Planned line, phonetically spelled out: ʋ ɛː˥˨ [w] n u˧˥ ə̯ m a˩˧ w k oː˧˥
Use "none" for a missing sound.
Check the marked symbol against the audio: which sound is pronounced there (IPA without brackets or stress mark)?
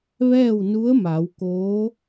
w